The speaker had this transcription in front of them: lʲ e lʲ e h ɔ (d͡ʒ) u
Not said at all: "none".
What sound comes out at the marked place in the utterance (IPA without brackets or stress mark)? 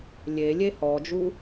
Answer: d͡ʒ